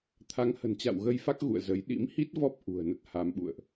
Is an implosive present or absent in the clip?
present